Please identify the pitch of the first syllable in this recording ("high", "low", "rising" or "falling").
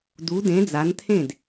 rising